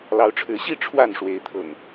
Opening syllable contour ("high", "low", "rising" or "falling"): rising